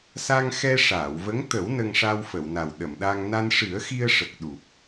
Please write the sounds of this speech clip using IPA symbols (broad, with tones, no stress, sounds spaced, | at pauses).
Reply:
s a˧ ŋ x ɛ˧ ʂ aː˨˩˨ w v ə˧˥ ŋ t̪ ə˨˩˦ w n ə˧ ŋ ʂ a˧ w f ə˨˩˨ w n a˨˩ w ɗ ə˨˩˨ m ɗ a˧ ŋ n a˧ n ʂ ɨ˨˩˦ ə̯ x i˧ ə̯ ʂ ə˨˩ k̚ ɗ u˨˩ p̚